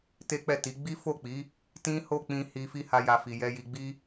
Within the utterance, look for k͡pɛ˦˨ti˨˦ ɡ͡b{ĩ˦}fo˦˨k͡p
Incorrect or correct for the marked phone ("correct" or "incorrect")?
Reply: incorrect